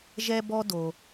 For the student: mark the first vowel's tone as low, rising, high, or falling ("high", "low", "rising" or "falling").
high